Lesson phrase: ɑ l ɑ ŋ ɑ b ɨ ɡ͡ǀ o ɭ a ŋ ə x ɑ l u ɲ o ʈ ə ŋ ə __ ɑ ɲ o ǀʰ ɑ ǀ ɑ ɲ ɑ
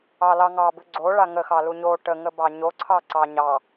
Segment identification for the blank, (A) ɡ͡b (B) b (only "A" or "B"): B